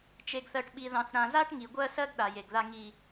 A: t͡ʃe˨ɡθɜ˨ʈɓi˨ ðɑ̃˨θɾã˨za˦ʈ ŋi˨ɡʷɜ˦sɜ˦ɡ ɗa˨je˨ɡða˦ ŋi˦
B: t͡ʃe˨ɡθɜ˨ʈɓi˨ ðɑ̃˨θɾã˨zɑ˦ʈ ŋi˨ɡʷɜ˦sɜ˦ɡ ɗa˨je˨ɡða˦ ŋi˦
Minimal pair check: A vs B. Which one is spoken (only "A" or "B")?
A